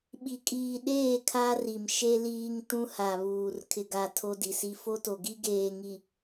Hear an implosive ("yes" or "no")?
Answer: yes